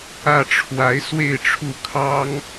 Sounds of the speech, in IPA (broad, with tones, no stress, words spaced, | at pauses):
ä˥˩ʈ͡ʂʰwa˧˥ɪ̯ swe˥˧ɪ̯ʈ͡ʂʰu˥˩ kʰɑ˥ŋ